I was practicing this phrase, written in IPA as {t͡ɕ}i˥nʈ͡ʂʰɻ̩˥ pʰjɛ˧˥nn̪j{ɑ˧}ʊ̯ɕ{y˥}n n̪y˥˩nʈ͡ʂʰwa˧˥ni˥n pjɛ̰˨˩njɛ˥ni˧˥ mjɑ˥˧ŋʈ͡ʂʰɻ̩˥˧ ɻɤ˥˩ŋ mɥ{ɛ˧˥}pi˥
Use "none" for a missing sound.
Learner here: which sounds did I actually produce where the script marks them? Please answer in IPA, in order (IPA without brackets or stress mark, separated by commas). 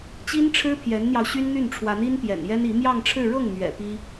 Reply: t͡ɕ, ɑ˧, y˥, ɛ̰˨˩